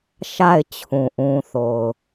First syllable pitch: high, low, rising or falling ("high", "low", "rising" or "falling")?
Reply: falling